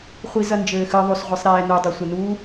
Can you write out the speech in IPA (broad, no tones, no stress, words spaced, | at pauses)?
χʷizɐnd͡ʒɘː xɨðˤosʁʷisˤɾɛː nudˤosʷɛnuː